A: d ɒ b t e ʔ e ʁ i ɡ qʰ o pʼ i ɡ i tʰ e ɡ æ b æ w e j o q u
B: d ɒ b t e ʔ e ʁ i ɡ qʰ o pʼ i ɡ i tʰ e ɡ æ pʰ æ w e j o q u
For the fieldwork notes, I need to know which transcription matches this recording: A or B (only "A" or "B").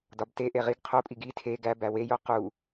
A